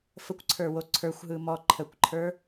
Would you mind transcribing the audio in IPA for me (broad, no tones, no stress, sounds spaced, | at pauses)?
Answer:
f ə kʷ ǀʰ ə˞ w o ǀʰ ə˞ xʷ ɦ ɯ m ɔ ǃʰ ə kʷ ǃʰ ə˞